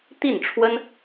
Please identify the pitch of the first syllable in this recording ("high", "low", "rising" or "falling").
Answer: falling